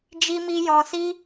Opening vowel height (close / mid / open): close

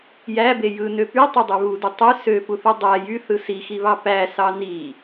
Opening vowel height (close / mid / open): open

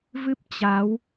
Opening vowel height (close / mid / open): close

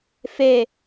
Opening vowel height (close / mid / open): mid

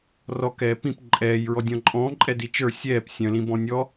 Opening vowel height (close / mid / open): mid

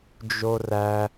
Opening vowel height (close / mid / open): mid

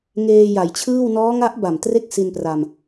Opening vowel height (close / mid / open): mid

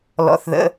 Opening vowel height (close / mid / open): mid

